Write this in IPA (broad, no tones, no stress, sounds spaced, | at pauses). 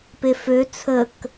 p e f ø t͡sʰ ə k